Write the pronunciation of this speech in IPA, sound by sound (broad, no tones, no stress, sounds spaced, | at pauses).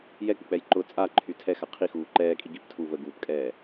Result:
j ɛ k͡p ʊ k͡p ɛ j ǃ ʊ t͡sʼ a ǃʰ y tʰ ɛ x a qʰ i x uː ǃ ɛː kʼ i ɡ i p tʰ u v ə ɡ uː p kʼ ɛː